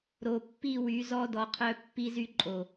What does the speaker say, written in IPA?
ɾ o˨ pː i˦˨ w y˨˦ z ɔ˦ d ɔ˨ qʰ œ˦ pː i˦ z y˦ ǃʼ o˨

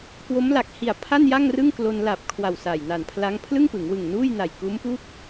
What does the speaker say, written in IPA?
k w o˦˥ m l a˨˩ k̚ h i˨˩ a̯ pʰ a˥˩ n j a˥˩ ŋ r ɯ˥˩ ŋ k l o˧ n l a˨˩ p̚ kʰ w a˨˩ w s a˨˩ j n a˨˩ n pʰ l a˦˥ ŋ pʰ l ɯ˥˩ ŋ p ɯ˩˦ ŋ w ɯ˨˩ ŋ n uː˥˩ j n a˨˩ j k uː˦˥ m p u˥˩ k̚

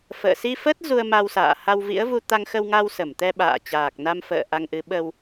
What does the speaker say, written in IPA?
f ə̰ː˧˨ s i˧ f ə˦˥ t̚ z u˧ ə̯ m a˧ w s a̰ː˧˨ h a˧ w v ḭ˧˥ ə̯ v u˧ t̪ a˧ ŋ x ə˧ w ŋ a˧ w s ə˧˩ m t̪ ɛ˧ ɓ a̰ː˧˨ t͡ɕ aː˨˩ k̚ n a˧ m f ə̰ː˧˨ ʔ a˧ ŋ ʔ ɨ˨˦ ɓ ə˧ w

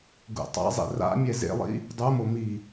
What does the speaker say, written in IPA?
ɡ ṵ tˤ a̰ zˤ ḛ r a̰ mʲ ɛ z ḛ lˠ ḭ | dˤ u m o m i

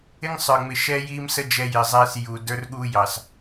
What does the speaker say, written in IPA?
ɪ˦ ŋ sˤ ə˞˨ ŋ͡m ɪ˨ ʃ ɛː˦ j iː˦ m s ə˦ d͡ʒ ɛ˦ j ɪ˨ zˤ ɛː˦ s j u˨ d ə˞˦ r ɠ uː˦ j ɑ˨ s

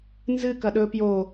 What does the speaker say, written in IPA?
n z ɨ k ɐ ɗ ɵ p j o

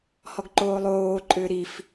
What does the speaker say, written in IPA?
h ɔ ɡ ǃ oː lˠ oː ǃʼ ʏː ɾ i f

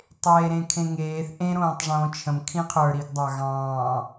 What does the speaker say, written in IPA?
tˤ eː ɾ ẽ kʰ ẽ ŋ eː θ ʔ ẽ ɾ õː tˤ ʐ õː t͡ʃʰ ə̃ m kʰ ĩ qʰ ə˞ ɾ i ɡ dˤ ɑ ɣ ɑ̃ː

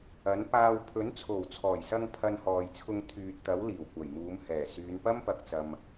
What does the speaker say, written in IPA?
ɐ˨˥ n p aː˧ w pʰ ɵ˨˥ n t͡sʰ o˨˩ w t͡sʰ ɔː˨˩ j s ɐ˧ ŋ pʰ ɐ˧ n h ɔː˨ j t͡sʰ ʊ˧ ŋ t̪ʰ yː˨ t̚ t̪ ɐ˨˥ w l iː˨˩ w kʷ ɐ˨˩ j m uː˨˧ m h ɛː˨˩ s yː˨˧ n p ɐ˥ m p ɐ˨ k̚ t͡s ɐ˨ m

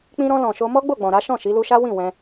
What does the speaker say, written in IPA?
k͡p ĩ˧ ɾ ɔ̃˧ l ɔ̃˨ ʃ o˧ m ɔ˦ ɡ͡b o˦˨ ɡ͡b ɔ̃˨ ɾ a˨˦ ʃ ɔ̃˦˨ ʃ i˨˦ l u˧ ʃ a˦ w ĩ˦˨ w ɛ̃˧

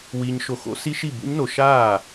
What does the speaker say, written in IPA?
w iː˨ ɲ ʃ o˨ x o̰˨˦ s i˦˥ ʃ i˥˩ b ṵ˦˥ ɲ n o˨ ʃ aː˥˩

